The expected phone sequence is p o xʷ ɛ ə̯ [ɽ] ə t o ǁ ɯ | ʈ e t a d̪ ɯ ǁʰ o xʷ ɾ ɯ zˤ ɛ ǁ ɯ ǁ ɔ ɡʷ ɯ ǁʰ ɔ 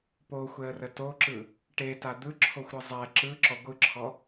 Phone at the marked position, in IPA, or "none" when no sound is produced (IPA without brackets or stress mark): r